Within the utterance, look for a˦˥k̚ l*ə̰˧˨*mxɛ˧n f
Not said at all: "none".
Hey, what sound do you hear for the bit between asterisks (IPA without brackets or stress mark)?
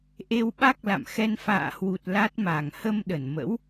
a̰˧˨